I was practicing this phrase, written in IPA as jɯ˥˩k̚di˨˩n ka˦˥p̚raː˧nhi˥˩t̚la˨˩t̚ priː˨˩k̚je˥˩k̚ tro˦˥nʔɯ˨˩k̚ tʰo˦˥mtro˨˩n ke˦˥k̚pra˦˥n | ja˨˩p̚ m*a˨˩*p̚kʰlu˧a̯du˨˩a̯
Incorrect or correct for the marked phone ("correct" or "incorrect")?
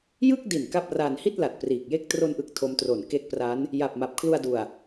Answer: correct